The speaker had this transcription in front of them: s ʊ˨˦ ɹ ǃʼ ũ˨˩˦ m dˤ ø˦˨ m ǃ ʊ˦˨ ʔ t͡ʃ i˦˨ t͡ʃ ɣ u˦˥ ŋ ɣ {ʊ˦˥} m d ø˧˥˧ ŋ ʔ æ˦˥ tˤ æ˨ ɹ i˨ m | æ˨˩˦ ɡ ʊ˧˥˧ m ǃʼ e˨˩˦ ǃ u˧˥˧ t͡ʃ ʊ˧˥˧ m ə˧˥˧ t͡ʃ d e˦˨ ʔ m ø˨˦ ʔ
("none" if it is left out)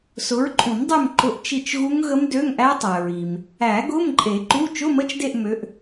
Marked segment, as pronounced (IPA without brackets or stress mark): ə˦˥